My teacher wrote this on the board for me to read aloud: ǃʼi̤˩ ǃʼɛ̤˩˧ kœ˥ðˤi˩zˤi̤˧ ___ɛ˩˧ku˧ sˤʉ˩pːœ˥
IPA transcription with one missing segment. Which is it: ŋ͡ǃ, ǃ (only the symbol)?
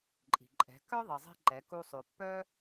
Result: ǃ